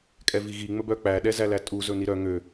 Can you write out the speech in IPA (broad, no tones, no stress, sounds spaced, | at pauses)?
kʼ ɛ v i ɣ i ŋ͡m ɵ b œ k͡p æ ɗ ɛ z æ l æ tʼ u z ɵ n i ɾ œ ŋ ø